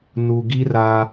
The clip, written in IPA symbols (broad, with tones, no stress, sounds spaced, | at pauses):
n u˨ ɡ i˦ r a˦